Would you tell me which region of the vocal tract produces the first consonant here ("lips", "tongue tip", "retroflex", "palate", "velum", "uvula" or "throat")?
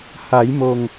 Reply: throat